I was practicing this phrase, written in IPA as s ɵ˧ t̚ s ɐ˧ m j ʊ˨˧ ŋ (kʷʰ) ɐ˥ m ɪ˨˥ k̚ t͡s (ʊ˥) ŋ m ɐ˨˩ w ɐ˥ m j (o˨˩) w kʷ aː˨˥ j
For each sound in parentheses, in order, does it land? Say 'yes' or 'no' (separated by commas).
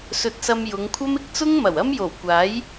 yes, yes, yes